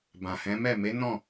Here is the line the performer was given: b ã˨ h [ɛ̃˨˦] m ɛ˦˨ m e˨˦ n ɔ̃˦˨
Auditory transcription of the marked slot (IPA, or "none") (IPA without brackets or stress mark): ɛ̃˨˦